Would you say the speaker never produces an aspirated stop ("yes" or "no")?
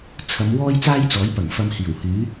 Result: no